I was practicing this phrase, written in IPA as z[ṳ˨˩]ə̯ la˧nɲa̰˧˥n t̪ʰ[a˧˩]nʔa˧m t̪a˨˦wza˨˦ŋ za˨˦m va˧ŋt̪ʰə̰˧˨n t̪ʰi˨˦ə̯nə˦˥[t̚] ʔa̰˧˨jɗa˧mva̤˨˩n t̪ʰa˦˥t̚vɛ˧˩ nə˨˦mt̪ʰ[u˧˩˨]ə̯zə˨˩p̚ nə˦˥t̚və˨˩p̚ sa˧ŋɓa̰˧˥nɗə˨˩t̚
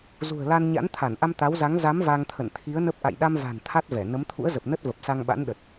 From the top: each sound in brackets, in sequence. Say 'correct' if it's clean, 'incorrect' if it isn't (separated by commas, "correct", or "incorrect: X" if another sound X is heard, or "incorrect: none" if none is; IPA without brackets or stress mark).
correct, correct, incorrect: p̚, incorrect: ṵ˧˥